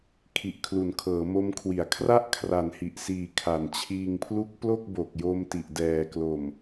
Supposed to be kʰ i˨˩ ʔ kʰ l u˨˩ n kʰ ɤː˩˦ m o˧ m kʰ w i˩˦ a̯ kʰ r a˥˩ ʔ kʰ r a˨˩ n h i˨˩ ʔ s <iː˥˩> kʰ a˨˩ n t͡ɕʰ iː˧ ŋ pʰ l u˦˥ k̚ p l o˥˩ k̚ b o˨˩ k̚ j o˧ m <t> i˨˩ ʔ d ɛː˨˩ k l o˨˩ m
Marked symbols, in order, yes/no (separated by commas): no, yes